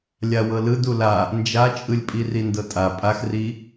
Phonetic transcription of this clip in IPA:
lʲ a w ɤ l ɯ d u l a | n d͡ʒ a t͡ʃʼ ɯ lʲ pʼ i r i n d ɤ tʼ a pʼ a x r i

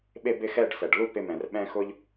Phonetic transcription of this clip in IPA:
ɓ e˥˧ b ɪ˥˧ x ɛ˥˧ ɖ s ɛ˩ ɖ l u˥˧ p ɪ˧ m ɛ̃˩ r ɓ ɛ̃˧ x ʊ˧ ʎ

